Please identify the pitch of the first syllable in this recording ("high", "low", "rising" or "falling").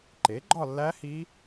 rising